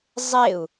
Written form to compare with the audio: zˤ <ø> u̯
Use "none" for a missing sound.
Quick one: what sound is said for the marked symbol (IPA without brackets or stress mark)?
e